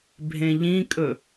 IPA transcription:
bʱ ẽ ʎ ĩ kʼ ɵ

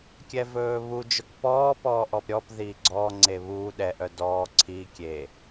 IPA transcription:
kʲ ɛ v ɵː β u d͡ʒ ɵ k p ɔː p ɔː ʔ ɔ p ɾʲ ɔ p ð iː ɡ͡ǀ ɔː ŋ͡ǀ e β uː ɗ ɛ ʔ œ d ɔː ǀʰ i kʲ e

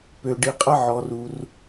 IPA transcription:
p ø˩ ɖ i˩ qʼ ɐ˧ ʕ ɔ˩ r u˩ r

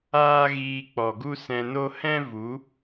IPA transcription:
aː˦ ɣ iː˧ k͡p ɔ˨ ɡ u˦ s ɛ̃˧ n o˦ h ɛ̃˦ v u˨˦

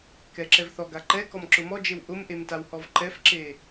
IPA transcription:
k ɛ ǁ ɛ v θ ɔ ɡ a ǃ ɛ k ɔ m ǁ ʊ m ɔ d͡ʒ e w ʔ ʊ m ʔ e m t a w h ɔ v ǃ ɛ f ǁ e

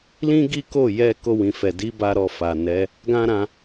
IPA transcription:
l ĩ˦ ɡ i˦ k o˦˨ j ɛ˧ k o˧ w ĩ˨ f ɛ˨ d i˨˦ b a˧ ɾ ɔ˧ f a˨ n ɛ˨˦ | ɡ ã˦ ɾ ã˧

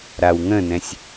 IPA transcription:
ɾ a w ŋ ə̃ n ɛ̃ sʲ

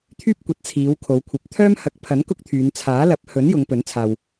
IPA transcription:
t̪ʰ yː˥ p̚ kʷ ɐ˨˥ t̚ t͡sʰ iː˨˧ w kʰ o˨˧ w kʷʰ ɐ˨ p̚ t̪ʰ œː˥ m h ɐ˨˥ k̚ pʰ ɐ˨˥ n k ʊ˥ k̚ t̪ʰ yː˨˧ n t͡sʰ aː˨˥ l ɐ˨˥ p̚ h ɵ˨˥ n j ʊ˨˧ ŋ p ɵ˨˥ n t͡sʰ aː˧ w

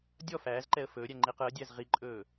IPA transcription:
dʲ ɔ f æː z ǃ ɛ ə̯ f ɵː ɾʲ æ ŋ͡ǃ i q ɯ ə̯ dʲ æ z ʁ i ǃʼ ɵː

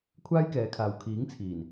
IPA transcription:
kʷʰ aː˥ j k ɛː˨˧ kʰ aː˨ w kʰ iː˨˥ ŋ t͡sʰ iː˨˩ n

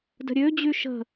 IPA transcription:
d ə̤ ɾʲ ø d͡ʑ y ʃ ə̤

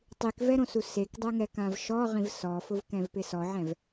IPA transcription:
tˤ i k v ɛ ɾ õ s u s e k dˤ ɛ ŋ ɛ k ã v ʃ ɔ ʁ ĩ v s ɔ f ʊ v k ɛ̃ v p ɪ s ɔ ʕ ɛ̃ v

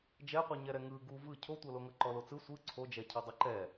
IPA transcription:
d͡ʒ ɛ qʷ ɯ ɲ ɛ ɾ ɛ ŋ ɯ ɡ u v ɯ cʰ o tʷ ɤ l o ŋ ɤ ǃ ɔ l o t͡s ɯ sʷ ɯ ǀʰ o d͡ʒ ɛ cʰ ɤ dˤ ɯ ǃ ɛ

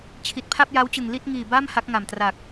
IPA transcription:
t͡ɕʰ i˨˩ t̚ pʰ a˥˩ p̚ j a˦˥ w t͡ɕ ɯ˨˩ ŋ l i˥˩ t̚ ŋ iː˨˩ b a˥˩ m h a˦˥ k̚ ŋ a˨˩ m t r a˨˩ k̚

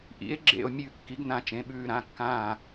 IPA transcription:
ʔ ḭ˩˥ e̯ ɡ͡ǁ ḛ˧˩ o̯ mʲ ʉ˧˩ kː i˩˥ ɡ n ã˧˩ t͡ʃ ẽ˩˧˩ ɓ ʉː˧˩ ɾ ã˩˧˩ kː ãː˧˩

